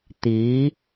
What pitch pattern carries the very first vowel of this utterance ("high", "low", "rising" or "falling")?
rising